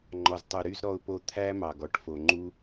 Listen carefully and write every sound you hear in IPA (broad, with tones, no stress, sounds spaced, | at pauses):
ŋ͡ǃ ɔ˨ z tˤ u˨ ɾ y˦ z ɾ ɔ˦ ʊ̯ p o˦ t̪ʰ æ˦ m ɑ˨ ɡ ɔ˧ ʈ f o˨ ŋ͡ǃ u˧